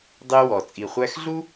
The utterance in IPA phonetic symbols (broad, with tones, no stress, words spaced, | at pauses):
dˤi˧wɔ˩ t͡sʼi˩χʷæ˧xɮu˥